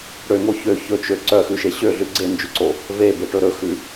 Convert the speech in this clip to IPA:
ɽøŋo çø çɵt͡ʃø ǀœxʉʃe ɕøɮʉ ɡ͡ǀend͡ʒʉǀo | vebeʈɵ ɾɵxʉ

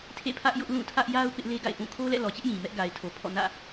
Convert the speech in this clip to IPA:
tʰḛ˦˨pʰä˦ʔjʊ˦ʔ lũ˦˨tʰä˦ʔ ja˦ʊ̯ pɪ˦ʔle˦ɡa̰˦˨ɪ̯ ʔũ˦˨ kʰo˦lɛ̰˦˨lɔ˨t͡ɕɪ˦ʔ jĩ˨mɛ˦ʔ ɡa˨ɪ̯tʰo˨pʰɔ̰˦˨ nä̰˦˨

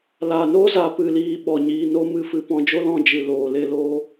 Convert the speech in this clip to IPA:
la˨ no˦za˨ pɨ˧liː˧ ɓɔ˨ɲiː˧no˦mɨ˦˨ fɨ˧pɔ̃˧d͡ʒo˦lɔ̃˦˨ d͡ʒɨ˨loː˨le˧ loː˧

